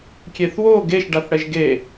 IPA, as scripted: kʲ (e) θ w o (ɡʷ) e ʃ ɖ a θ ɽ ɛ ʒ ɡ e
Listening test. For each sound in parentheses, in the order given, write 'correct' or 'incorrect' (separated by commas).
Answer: correct, incorrect